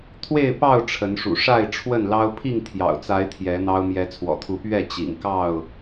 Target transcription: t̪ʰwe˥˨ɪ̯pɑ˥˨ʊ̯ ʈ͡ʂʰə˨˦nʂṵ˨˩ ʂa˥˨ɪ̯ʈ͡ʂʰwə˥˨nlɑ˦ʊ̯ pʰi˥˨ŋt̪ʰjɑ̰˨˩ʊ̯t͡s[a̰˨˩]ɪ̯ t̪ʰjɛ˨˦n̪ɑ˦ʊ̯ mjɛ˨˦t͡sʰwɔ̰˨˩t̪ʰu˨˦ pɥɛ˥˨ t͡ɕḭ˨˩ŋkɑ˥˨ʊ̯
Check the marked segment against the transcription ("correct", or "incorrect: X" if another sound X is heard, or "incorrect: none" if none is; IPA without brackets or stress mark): incorrect: a˨˦